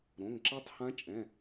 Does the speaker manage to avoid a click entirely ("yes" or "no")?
no